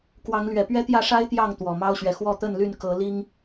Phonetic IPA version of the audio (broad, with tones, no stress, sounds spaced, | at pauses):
k w ɑ˨˦ ŋ l ɥ ɛ˨˩ p ɥ ɛ˦ t̪ j ä˥˨ ʂ a˦ ɪ̯ t̪ j ɑ˥˨ ŋ t̪ w ɔ˨˩ m ɑ˦ ʊ̯ ɕ ɥ ɛ˨ x w ɔ˥˨ t̪ ə˥˨ n l y˥˨ n k ɤ˨˦ l i˦ ŋ